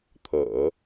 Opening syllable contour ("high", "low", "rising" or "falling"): low